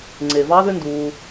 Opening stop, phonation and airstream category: click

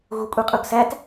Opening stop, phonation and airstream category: ejective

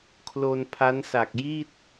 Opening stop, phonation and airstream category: aspirated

